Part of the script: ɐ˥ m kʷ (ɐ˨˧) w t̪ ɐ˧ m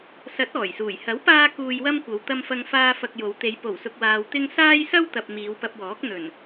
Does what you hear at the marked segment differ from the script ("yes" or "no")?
no